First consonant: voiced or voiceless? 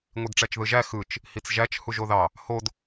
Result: voiced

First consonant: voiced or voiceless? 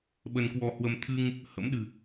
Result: voiced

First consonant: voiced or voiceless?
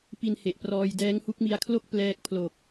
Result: voiceless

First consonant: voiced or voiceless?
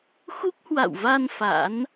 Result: voiceless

